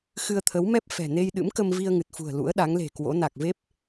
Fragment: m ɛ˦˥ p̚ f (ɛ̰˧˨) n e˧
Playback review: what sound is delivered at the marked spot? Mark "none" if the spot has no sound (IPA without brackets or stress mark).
ɛ̤˨˩